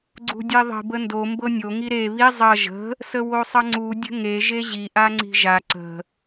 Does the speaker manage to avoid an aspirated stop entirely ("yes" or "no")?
yes